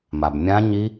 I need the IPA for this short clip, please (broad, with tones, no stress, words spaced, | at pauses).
ma˩bmʲã˦˥ ɲi˦˥